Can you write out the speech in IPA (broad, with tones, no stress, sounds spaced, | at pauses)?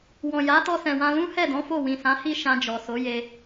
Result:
w ɔ̃˨ j a˨˦ t ɔ˧ s ɛ̃˨ w ã˧ l ũ˦ h ɛ˦˨ d ɔ̃˨˦ f o˦˨ w ĩ˨ s ã˨˦ h i˦˨ ʃ ã˧ d͡ʒ ɔ˨ s o˨˦ j e˧